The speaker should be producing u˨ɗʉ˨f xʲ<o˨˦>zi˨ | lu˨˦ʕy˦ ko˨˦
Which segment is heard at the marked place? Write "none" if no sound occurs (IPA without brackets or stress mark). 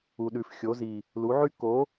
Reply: o˨˦